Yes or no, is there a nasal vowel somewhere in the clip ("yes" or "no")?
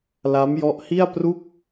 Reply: no